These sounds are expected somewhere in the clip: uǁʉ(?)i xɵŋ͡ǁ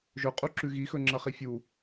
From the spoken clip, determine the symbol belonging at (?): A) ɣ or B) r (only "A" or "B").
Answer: A